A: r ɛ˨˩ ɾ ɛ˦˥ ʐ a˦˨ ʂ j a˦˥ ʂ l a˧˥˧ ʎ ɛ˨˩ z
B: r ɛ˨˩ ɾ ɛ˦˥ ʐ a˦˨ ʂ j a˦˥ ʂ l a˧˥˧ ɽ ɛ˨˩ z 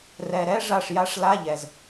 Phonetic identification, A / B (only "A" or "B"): A